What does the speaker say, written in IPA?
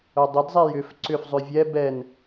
œ dˤ ə d zˤ ɛ j ʏ f ǀ ʏ f zˤ ʏ vʲ ɛ b ɛ n

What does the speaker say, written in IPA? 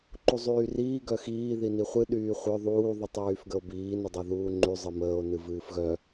ǃ u zˤ yː r iː ɡ œ x iː ð i n i χʷ ɨ ɗ yː χʷ œ ðˤ uː ðˤ y tˤ j yː f ɡ ə o̯ b iː n ə dˤ œ ð uː ŋ͡ǃ y zˤ ɨ m əː o̯ n ɨ v ɨː f ɣ œ

